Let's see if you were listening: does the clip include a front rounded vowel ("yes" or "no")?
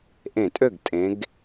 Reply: yes